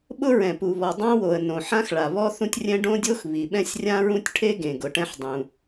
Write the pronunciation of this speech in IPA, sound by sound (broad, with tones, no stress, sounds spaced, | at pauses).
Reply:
ɓ ʊ˥ ɹ ɛ̃˩ p u˩ β ɔ˩ dˤ ã˥ w o˩ ə̯ n õ˩ ħ ã˥ x ɭ a˩ β ɔ˥ θ ũ˥ tʲ rʲ ɛ̃˥ ɖ õ˥ dʲ o˥ x β i˩ ɓ ɛ̃˥ sʲ rʲ ã˥ ɹ ũ˥ tʲ ʈʰ e˥ ɡ ẽ˩ ɡ ʊ˩ ʈ ɛ̃˥ ħ dˤ ũ˩